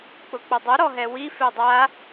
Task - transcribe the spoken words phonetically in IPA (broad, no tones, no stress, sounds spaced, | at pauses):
k͡p ʊ k͡p ʊ dˤ ʊ ɾ ɔ ɦ ɛ w i f e dˤ a